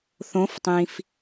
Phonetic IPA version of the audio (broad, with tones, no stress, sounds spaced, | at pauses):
θ õ˩˧ f tˤ ĩ˩ f